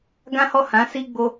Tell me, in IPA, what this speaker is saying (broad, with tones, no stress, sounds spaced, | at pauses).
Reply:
ɡ ã˦ h ɔ˦˨ h ã˨˦ s i˦ ɡ͡b o˦